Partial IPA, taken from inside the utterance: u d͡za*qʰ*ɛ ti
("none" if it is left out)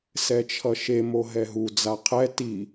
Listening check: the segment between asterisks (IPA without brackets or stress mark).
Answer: qʰ